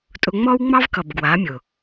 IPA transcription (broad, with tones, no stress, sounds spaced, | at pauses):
tʼ ʊ˧ ŋ͡m ɔ˦ w ŋ͡m ɑ˦ v k ʌ˨ b ɡ w a˨˦ mʲ ʊ˨